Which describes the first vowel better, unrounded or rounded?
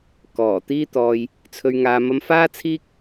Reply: rounded